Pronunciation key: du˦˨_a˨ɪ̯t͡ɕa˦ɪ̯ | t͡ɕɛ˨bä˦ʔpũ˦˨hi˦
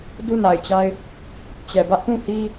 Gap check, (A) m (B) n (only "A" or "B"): B